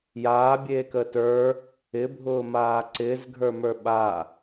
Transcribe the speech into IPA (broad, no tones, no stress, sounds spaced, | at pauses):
j aː bʲ eː k əː t ə˞ | ɪ bʱ ʊː m aː ǀ ɪː z ɡʱ ə˞ m ə˞ ɓ a